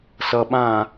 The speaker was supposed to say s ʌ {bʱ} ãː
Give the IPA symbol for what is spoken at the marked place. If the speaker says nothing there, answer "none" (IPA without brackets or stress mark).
ɓ